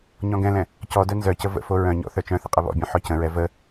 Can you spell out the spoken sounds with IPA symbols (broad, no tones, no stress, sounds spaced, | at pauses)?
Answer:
ɲ ɔ̃ ɡ ɛ̃ l ɛ̃ | c ɔ d œ n z œ c ə v ə̰ f o ɹ œ̃ ɲ ɔ̰ θ œ t͡ʃ œ̃ θ ə qʼ ə β ɔ̰ bʲ œ̃ ħ ɔ c ə̃ ɹ ɛ v ə